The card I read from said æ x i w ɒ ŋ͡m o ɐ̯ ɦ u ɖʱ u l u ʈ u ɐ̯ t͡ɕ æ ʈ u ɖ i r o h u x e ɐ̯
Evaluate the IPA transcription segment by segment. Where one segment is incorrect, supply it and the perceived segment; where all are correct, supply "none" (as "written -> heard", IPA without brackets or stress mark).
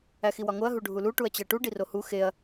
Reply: ŋ͡m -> ŋ